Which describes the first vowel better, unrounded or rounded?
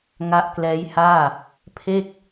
unrounded